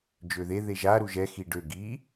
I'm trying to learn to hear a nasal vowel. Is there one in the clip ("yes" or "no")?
no